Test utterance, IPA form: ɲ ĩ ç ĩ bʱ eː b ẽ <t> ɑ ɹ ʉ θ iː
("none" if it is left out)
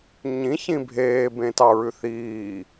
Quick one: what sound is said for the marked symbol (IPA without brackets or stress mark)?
t